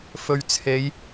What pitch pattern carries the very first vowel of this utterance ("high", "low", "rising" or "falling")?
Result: low